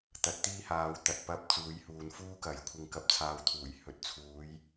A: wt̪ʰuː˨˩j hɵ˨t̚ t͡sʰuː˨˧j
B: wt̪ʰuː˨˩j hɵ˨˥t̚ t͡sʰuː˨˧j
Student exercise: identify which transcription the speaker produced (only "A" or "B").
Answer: B